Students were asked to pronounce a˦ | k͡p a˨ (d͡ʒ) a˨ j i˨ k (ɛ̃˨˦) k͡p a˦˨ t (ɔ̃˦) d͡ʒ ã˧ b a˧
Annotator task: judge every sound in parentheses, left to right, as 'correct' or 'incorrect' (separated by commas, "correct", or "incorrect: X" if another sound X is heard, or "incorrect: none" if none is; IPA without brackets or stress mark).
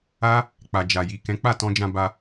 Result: correct, correct, incorrect: ɔ̃˧